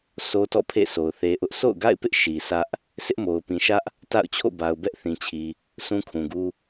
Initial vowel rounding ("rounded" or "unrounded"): rounded